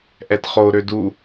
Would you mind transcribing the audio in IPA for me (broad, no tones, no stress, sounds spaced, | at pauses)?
ʔ ɛ t χ o ɾ ø d u